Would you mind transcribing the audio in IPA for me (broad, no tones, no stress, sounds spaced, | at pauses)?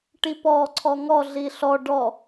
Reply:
ʈ i p ɔ ǀʰ ɔ ŋ ɔ ɮ i ɬ ɔ ɖ ɔ